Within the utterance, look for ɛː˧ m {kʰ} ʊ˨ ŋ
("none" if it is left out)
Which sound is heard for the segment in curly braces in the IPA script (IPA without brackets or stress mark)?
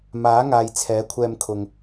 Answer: kʰ